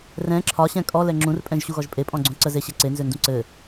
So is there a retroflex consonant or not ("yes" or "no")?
no